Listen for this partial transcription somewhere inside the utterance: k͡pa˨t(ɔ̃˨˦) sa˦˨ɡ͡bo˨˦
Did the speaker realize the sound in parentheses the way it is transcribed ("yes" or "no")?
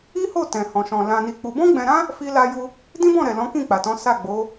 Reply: yes